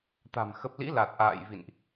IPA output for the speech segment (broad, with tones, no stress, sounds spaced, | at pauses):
t̪ a̤˨˩ m x ə˨˩ p̚ l ḭ˧˥ l a˨˩ t̚ ʔ a̰ː˧˨ j v ḭ˧˨ n ʔ